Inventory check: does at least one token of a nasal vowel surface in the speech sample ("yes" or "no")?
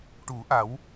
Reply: no